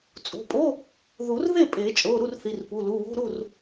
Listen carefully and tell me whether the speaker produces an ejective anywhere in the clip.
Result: yes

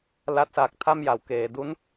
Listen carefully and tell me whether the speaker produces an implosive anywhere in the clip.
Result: no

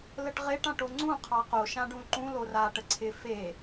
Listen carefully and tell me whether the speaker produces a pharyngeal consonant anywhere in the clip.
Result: no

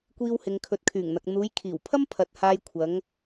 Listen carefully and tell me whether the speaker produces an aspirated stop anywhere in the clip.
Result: yes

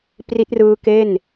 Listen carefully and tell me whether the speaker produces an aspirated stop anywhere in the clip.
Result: no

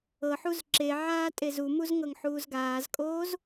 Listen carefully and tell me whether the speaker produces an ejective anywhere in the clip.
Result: yes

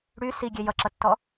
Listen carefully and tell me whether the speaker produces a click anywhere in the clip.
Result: yes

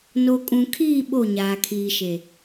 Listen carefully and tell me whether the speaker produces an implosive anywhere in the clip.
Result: yes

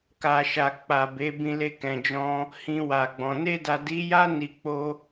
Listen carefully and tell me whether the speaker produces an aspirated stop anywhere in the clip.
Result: no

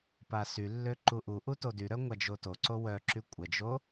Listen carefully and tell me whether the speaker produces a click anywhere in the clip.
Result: yes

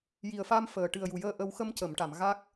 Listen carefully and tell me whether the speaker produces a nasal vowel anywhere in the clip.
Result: no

